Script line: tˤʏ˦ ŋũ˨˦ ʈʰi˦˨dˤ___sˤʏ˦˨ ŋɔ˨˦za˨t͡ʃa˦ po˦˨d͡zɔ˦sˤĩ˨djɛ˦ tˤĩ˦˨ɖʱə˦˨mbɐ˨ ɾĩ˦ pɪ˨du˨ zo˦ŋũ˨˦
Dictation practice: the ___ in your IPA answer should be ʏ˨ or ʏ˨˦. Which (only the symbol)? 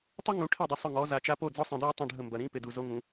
ʏ˨˦